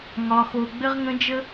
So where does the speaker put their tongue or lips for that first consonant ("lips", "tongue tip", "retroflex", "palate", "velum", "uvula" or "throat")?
velum